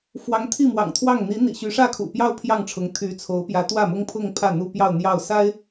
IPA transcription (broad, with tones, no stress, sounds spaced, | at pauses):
f w ɑ˧˥ ŋ t̪ʰ i˥˩ m w ɑ̰˨˩ ŋ t̪ʰ w ɑ˥˩ ŋ n̪ i˧˥ n̪ ḭ˨˩ ɕ y˧˥ ʂ ä˥˩ kʰ ṵ˨˩ p j ɑ˥˧ ʊ̯ pʰ j ɑ˥˩ ŋ ʈ͡ʂʰ ʊ˧˥ ŋ t̪ʰ y˧˥ t͡sʰ o˧˥ ʊ̯ p j ä˧˥ t̪ w ä˥˩ m ʊ˥ ŋ pʰ ʊ˥˧ ŋ pʰ ä˥˩ n̪ u˥ p j ɑ˥˧ ʊ̯ n̪ j ɑ˥˩ ʊ̯ s a˥ ɪ̯